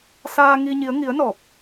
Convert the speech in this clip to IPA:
saː˧ ŋi˧ɲi˨˦ə̯ ŋi˨˦ə̯nɔ˨˩p̚

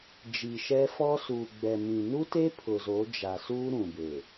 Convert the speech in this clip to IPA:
d͡ʒiː˨ʃɛ˦fɔ˦ su˨ɡ͡bɛ˨mĩ˨ nu˦te˦ pʰʊ˨zo˨˦ d͡ʒa˨suː˦ ɾũ˨be˨

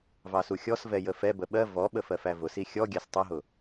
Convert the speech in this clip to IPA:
vɑsuxʲɔsvɛ jəfɛbə ɓɜ vɔɓə fɜfævʊsi xʲɔ ɡʲæstˤʊɦʊ

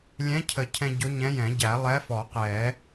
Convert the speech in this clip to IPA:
lʲɛ̃˧˥cʰə˨˩˦cʰɛ̃˧ ɟʊ˧˥ɲɛ̃˧˥jɛ̃˨˩˦ ɟæ˨˩˦ lˠɛ˧˥fɔ˨˩˦qɛ˨˩˦

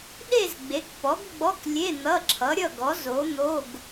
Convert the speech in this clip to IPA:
ɗe˥˧z ɡ͡be˨˥kpɔ˨˥ɡɡ͡bɔ˧˥˧klʲe˧˥˧ n̪ʌ˧˥˧ǁʰʌ˨˥ɾʲʌ˥˧ɡɔ˨˥ zo˨˥n̪o˧˥˧ɡ

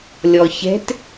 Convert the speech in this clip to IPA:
lʲɔçɛ̤t

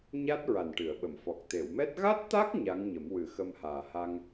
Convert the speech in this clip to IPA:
ɲa˦˥t̚ ɹa˨˩nʈɨ˨˩˨ə̯ɓə˨˩˨mfɔ˨˩k̚ t̪e˨˩˨wmɛ˦˥t̚ ɣa˦˥t̚t̪a˦˥k̚ ɲa˧˥ŋɲə˨˩˦m wɨ˨˩˦xə˧mhaː˨˩ha˧ŋ

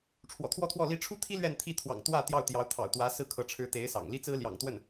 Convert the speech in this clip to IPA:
ʈ͡ʂʰwɔ̰˨˩t̪ʰwɔ˥˧t̪ʰwɔ˥˩li˥ ʈ͡ʂʰu˥t̪ʰi˥ lɥɛ˥˧nt̪ʰi˥˩ t̪ʰwɑ̰˨˩ŋt̪wä˥˧ t̪jɑ˥˩ʊ̯t̪jɑ˧˥ʊ̯t̪ʰɑ̰˨˩ʊ̯t̪wä˧˥ sɹ̩˥˩kʰɤ˧˥ʈ͡ʂʰɻ̩˧˥t̪e˧˥ɪ̯ sɑ̰˨˩ŋ li˥t͡sɹ̩˥ljɑ̰˨˩ŋt̪wə˥˩n

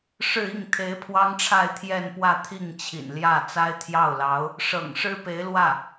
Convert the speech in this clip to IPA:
ʂɻ̩˥˧ i˥˩ŋ t̪ʰe˧˥ɪ̯pʰwɑ˥ŋʈ͡ʂʰa˥˧ɪ̯ t̪ʰjɛ˥˧npwä˥˧t̪ʰi˥˩ŋt͡ɕʰḭ˨˩n ljä˥˩ t͡sa˥ɪ̯t̪ʰjɑ˥˩ʊ̯lɑ˧˥ʊ̯ | ʂɤ̰˨˩ŋʂɻ̩˥pe˧˥ɪ̯lwä˥˩

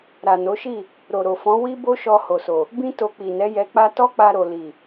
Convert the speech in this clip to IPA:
ɾa˨no˨˦ʃi˦˨ | ɾo˨ɾo˨fɔ̃˨˦ wi˦ bo˦ʃɔ˧ ho˨so˨ | bĩ˦ to˧ k͡pi˨nɛ˨˦jɛ˧k͡pa˦ tɔ˦k͡pa˧ɾo˨ li˨

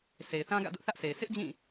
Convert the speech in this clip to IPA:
sʰe˨ɪ̯θã˦ ɡä̰˦˨dʊ˦ʔθä˦ʔsʰe˨ɪ̯ sʰɪ˦ʔd͡ʑĩ˦˨

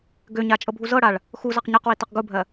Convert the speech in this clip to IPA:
ɡøɲa t͡ʃʼɤbʱuzɤɽaɭ | xuzaq ɲɯqwi tɤqɡubʱɜ

